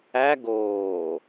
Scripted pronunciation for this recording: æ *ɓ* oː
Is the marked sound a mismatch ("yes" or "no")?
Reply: yes